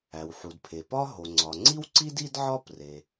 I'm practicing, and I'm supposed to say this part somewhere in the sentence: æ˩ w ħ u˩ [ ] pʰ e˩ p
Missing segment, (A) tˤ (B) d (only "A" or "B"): B